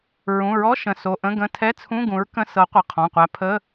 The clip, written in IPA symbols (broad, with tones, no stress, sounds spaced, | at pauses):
ɹ ũ˩˧˩ ɹ ɔ˧˥˧ ʃ ə̃˩˧˩ s o˩˧˩ ʔ ə̃˧˥˧ ɡ ə̃˧˥˧ tʰ ɛ˧˥˧ t͡sʰ ũ˧˥˧ ɡ ũ˨˥ ɹ k ə̃˧˥˧ s ɤ˨˥ qʷ ə˩˧˩ qʰ ɔ̃˩˧˩ qʷ æ˨˥ pʰ ə˧˥˧